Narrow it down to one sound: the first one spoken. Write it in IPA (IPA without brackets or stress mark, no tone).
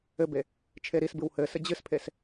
ɘ